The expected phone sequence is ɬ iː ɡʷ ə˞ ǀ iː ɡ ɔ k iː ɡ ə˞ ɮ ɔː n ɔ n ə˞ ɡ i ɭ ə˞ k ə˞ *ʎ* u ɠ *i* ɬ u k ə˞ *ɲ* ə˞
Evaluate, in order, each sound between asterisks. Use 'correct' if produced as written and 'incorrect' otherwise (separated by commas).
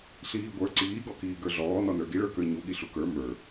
incorrect, correct, incorrect